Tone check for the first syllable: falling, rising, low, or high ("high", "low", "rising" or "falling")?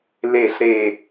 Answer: falling